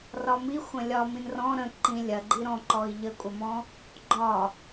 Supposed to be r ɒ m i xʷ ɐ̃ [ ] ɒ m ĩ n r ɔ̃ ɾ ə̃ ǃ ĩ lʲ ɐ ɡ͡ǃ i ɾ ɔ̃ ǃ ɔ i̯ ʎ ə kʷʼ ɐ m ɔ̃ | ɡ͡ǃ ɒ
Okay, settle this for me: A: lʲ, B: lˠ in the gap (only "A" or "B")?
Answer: A